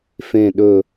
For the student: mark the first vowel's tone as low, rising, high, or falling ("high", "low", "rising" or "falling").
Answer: falling